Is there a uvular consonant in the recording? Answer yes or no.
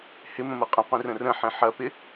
yes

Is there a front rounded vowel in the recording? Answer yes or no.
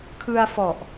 no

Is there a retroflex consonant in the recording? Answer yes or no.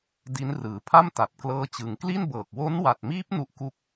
no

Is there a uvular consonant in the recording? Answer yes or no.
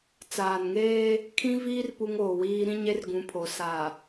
no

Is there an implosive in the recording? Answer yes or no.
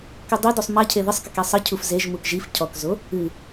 no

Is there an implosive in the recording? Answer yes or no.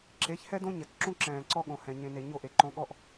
yes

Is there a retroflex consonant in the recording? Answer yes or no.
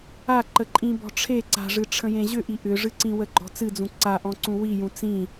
yes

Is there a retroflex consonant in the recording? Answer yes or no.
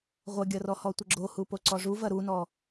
yes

